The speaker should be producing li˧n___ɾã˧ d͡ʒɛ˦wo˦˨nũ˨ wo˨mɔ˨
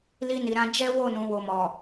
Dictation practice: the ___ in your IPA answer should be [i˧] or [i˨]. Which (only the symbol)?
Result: i˨